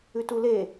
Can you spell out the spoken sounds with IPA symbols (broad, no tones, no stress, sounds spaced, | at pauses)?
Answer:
ʉ t u l e